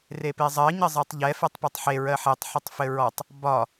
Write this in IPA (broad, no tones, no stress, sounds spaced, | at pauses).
r e p e zˤ ɜ ɲ ɘ zˤ e tˤ ʎ ɛ f ɛ tˤ p e tˤ ħ e ɹ ɜ ħ e tˤ ħ ɘ tˤ f ɘ ɹ ɔ tˤ | b ɒ